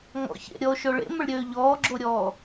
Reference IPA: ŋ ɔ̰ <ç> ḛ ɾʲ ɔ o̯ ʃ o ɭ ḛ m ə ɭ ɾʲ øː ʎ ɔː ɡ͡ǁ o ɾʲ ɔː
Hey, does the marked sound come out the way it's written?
yes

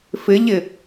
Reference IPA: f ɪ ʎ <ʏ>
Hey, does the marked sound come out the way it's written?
no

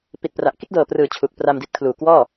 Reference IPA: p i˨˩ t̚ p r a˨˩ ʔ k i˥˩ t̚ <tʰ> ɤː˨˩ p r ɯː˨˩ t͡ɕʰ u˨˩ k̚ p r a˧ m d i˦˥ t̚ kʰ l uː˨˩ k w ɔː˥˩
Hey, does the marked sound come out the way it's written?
no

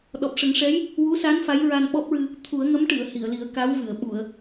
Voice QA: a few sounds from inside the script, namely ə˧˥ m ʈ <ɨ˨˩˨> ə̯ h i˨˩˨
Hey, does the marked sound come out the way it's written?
yes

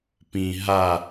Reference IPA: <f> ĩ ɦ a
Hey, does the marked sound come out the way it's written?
no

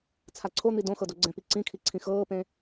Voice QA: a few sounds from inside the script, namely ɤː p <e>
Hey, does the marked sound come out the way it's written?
no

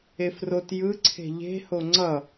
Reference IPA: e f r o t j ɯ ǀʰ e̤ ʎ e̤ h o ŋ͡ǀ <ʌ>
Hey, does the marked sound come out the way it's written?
yes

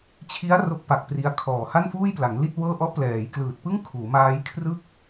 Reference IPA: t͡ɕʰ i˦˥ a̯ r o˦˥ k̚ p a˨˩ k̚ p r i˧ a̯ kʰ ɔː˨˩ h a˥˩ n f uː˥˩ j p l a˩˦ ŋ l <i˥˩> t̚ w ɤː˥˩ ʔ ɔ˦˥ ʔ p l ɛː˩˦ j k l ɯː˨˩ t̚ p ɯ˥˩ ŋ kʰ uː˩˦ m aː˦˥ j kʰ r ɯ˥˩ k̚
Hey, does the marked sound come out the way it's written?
yes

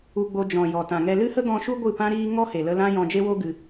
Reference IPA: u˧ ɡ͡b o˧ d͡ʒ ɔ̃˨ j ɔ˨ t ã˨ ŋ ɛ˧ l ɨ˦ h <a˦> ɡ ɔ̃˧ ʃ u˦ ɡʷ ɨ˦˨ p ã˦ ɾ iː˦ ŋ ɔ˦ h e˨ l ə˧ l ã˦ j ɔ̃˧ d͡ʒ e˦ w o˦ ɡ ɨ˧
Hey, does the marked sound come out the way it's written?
no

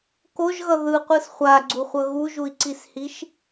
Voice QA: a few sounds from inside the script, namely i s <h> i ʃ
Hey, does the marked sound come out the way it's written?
yes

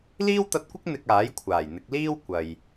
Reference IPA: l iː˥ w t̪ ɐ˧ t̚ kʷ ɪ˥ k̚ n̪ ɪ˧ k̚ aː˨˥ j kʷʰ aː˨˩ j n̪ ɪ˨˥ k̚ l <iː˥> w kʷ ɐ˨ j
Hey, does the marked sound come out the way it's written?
yes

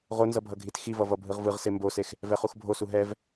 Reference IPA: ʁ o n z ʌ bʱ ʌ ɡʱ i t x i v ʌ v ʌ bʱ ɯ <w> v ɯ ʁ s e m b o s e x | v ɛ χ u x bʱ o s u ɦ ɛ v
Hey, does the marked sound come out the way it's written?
no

